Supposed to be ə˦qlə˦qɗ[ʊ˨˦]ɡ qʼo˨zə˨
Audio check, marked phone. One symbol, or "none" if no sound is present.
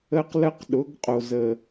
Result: ʊ˨˦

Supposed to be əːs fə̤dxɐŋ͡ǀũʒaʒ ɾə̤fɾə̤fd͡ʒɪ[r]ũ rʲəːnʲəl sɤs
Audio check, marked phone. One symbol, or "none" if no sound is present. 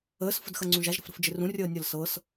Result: r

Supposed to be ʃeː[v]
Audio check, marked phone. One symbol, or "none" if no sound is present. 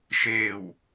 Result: w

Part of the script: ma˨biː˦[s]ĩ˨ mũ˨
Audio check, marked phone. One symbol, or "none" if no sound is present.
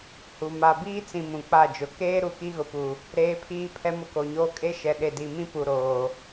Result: t͡s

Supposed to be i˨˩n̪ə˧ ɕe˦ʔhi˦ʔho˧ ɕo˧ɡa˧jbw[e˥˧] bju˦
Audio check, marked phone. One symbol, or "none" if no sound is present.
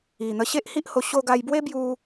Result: e˦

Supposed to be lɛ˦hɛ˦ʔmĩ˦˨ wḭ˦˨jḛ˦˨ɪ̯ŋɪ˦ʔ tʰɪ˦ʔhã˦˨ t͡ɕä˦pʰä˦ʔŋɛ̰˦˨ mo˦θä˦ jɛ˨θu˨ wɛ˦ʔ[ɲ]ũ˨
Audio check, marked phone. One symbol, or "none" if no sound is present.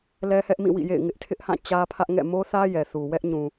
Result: ɲ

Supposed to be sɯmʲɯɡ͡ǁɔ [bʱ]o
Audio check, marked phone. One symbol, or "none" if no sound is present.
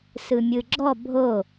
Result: bʱ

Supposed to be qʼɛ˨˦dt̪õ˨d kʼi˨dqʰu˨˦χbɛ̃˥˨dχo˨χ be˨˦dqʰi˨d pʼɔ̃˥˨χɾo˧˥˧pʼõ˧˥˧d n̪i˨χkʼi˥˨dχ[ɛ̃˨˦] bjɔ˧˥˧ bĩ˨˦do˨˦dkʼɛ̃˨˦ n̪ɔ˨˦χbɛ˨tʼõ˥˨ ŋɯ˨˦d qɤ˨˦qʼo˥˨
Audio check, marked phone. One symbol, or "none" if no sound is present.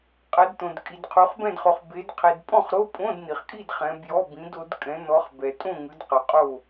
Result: ɛ̃˨˦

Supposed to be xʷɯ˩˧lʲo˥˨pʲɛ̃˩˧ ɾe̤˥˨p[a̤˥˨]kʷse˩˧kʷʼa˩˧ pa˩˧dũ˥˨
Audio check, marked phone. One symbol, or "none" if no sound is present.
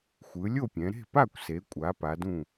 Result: a˥˨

